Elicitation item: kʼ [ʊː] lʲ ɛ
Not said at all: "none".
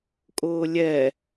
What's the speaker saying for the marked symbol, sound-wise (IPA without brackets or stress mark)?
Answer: ʊː